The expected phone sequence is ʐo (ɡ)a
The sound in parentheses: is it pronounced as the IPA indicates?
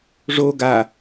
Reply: yes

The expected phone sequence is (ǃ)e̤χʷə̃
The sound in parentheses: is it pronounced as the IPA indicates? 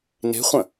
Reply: no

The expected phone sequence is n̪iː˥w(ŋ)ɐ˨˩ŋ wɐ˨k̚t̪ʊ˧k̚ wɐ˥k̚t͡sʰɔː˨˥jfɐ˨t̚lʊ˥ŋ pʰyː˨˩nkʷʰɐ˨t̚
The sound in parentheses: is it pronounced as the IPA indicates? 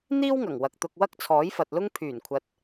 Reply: yes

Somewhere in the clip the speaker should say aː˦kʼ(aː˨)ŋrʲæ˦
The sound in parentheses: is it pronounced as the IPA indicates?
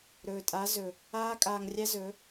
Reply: no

